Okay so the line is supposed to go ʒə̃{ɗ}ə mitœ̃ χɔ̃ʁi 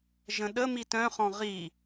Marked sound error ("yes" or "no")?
no